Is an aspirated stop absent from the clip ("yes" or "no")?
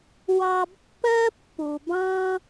yes